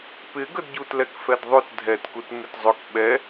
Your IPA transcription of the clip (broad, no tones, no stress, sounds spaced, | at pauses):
p ɪ ɡ ə d ɟ u t l ɛ k f ɛ d ðˤ ø t dʱ ɛ t k u t m ɪ t zˤ ʊ k ɓ ɛ